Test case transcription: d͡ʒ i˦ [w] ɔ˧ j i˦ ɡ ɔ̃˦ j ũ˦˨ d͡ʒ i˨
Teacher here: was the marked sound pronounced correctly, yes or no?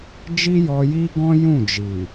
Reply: no